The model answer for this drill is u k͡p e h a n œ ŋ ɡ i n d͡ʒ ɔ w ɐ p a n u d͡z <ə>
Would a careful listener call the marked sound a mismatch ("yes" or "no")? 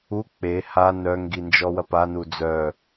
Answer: yes